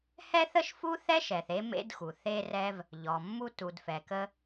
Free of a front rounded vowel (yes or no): yes